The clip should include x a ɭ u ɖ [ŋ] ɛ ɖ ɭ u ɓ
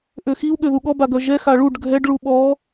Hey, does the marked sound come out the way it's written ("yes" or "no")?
no